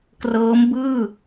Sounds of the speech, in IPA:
k r ɤː˦˥ m b ɯː˥˩

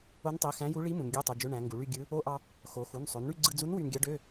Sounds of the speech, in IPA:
o˧˥ n tˤ i˩˧˩ x æ̃˧˥ j u˧˥ ɭ i˧˥ m ũ˩˧ n ɡʲ ø˧˥˧ tˤ u˩˧˩ d͡ʒ ø˧˥˧ ɳ æ̃˩˧ ŋ ɡ u˩˧ ɭ y˥˧ ɡʲ ɯ˧˥ | o˧˥˧ ʔ ɑ˧ | x o˩˧ x u˩˧˩ n sˤ ø˩˧ n ɳ y˥˧ ɡ͡ǀ ɯ˧ d͡z u˧˥ n w y˧ n ɡʲ ɑ˧˥ ɖ ø˧˥˧

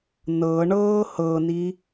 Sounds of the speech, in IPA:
n ɤ ɳ ɤː h ɤ n i

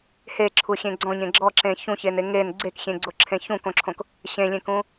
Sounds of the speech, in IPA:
h e ǁʰ u xʲ ẽ ɡ͡ǀ ɔ̃ ɲ ẽ ɡ͡ǁ ɔ ǁ ẽ ç ũ ç e n e ŋ e n ɡ͡ǀ e k xʲ ẽ ɡ͡ǀ o ǁʰ ẽ ç ũ k õ ǁʰ õ k | ɕ ẽ lʲ ẽ k ũ

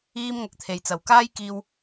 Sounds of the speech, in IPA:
iː˧ m ŋ ɐ˨ k̚ t̪ʰ e˨˩ j t͡s ɐ˨˩ w k aː˥ j k iː˧ w

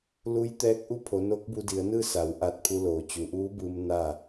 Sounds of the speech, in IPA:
l u˧˥ j t̪ ɛː˧˥ k̚ ʔ u˥˨ pʰ o˩˧ n o˧˥ k̚ b u˧ d i˩˧ ə̯ n ɯː˥˨ s a˩˧ w ʔ a˧ t̚ pʰ u˧ l oː˩ t͡ɕ u˩˧ ʔ uː˧˥ b ɯː˧ m n a˥˨

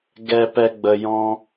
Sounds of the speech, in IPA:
ɡ ɛ˧ p ɛ˧ ɡ͡b ə˧ j ɔ̃˦

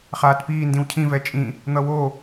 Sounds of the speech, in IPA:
χ aː t p iː n d ĩ w cʰ ĩ v ɛ t͡ʃʼ ĩ | n̪ ʌ w o

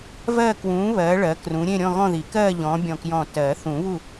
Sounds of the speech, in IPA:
v ɜ˥˧ k w ũː˨˥ β ɜː˨˥ ɭ ɜ˨˥ k r ũ˨˥ ɾʲ ẽ˥˧ ɾʲ ɔ̃˥˧ ɣ ɔ̃˥˧ ð i˨˩˦ k ɜː˥˧ ʎ ɔ̃ː˨˥ bʲ ɔ̃˧˩ k j ɔ̃˧˩ t ɜː˨˩˦ θ ũ˨˩˦ β u˥˩

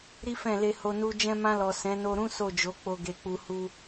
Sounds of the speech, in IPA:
ɾ i˦ f ɛ̃˦˨ l e˧ h o˧ n u˦ d͡ʒ ɛ̃˧ m ã˧ l ɔ˨ s ɛ̃˨˦ n o˧ ɾ ũ˦ s o˦˨ d͡ʒ o˨˦ k͡p o˧ ɡ e˧ k͡p u˧ h u˧

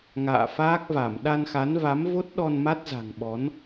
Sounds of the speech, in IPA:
ŋ a̰ː˧˨ f aː˦˥ k̚ v a˧˩ m ɗ a˧ n x a˨˦ n v a˨˦ m v o˦˥ t̚ ɗ ɔ˧ n m a˦˥ t̚ z a̤˨˩ ŋ ɓ ɔ˨˦ n

